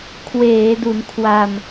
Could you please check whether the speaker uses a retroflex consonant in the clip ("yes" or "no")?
no